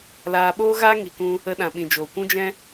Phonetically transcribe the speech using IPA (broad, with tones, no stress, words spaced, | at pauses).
laː˧ɓoː˦ɣaː˦ ŋi˨kũ˧ | ə˧ɗã˨ɓĩ˨ d͡ʒoː˨kʷũ˦d͡ʒɛ̃˦